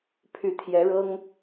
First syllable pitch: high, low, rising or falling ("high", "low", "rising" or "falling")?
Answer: rising